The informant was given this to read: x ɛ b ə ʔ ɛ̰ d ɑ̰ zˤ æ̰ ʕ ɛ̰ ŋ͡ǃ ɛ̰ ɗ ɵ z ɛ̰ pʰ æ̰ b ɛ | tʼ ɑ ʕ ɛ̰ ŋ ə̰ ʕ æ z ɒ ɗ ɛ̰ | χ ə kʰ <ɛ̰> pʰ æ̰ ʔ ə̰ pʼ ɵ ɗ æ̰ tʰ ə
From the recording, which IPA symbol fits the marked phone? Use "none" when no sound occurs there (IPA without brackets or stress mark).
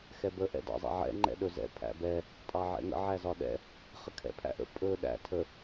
ɛ̰